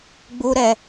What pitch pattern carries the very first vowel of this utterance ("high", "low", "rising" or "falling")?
high